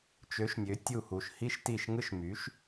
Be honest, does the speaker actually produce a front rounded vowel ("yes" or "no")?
yes